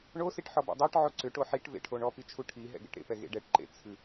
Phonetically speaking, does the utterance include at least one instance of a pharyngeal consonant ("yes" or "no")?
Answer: yes